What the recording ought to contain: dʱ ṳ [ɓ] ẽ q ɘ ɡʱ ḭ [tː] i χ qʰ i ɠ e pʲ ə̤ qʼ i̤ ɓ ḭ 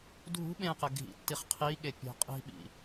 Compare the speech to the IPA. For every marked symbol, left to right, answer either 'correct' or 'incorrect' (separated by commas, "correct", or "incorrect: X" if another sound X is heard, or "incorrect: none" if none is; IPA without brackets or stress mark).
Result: correct, correct